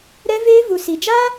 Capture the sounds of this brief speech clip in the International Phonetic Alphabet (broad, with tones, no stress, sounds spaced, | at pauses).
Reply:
ɾ ɛ˦ v eː˦ v u˨ s i˨ d͡ʒ aː˦